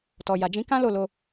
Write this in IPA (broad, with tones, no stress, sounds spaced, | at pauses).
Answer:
t ɔ˨ j a˨ d͡ʒ ĩ˨˦ k ã˦ l o˦˨ l o˧